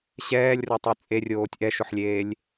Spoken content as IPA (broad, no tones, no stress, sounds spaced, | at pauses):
ɕ ɛː lʲ r o tˤ e t͡sʼ e rʲ oː tʲ ʔ ɛ ʃ ʊ ħ lʲ eː lʲ